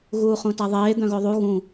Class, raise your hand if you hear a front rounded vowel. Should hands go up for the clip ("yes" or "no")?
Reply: yes